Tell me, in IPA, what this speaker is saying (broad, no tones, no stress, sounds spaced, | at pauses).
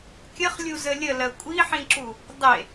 kʲ ə χ lʲ u z ə lʲ ə l ɜ kʷʼ i ħ ĩ ǁ u | dˤ e